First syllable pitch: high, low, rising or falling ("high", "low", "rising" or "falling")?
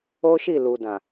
high